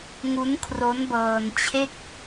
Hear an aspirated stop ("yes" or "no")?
yes